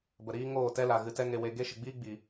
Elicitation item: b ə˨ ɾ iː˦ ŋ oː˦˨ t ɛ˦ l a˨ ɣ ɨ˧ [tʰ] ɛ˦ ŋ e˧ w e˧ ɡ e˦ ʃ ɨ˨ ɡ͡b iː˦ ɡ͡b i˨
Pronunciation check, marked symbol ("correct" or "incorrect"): incorrect